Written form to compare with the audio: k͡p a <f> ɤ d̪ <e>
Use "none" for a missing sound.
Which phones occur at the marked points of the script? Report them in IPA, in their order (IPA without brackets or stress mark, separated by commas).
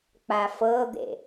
f, ḛ